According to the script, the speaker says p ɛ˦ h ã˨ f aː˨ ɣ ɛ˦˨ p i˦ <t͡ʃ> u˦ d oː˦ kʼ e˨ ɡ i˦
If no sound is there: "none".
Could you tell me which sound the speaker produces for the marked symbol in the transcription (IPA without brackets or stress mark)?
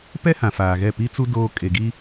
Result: t͡s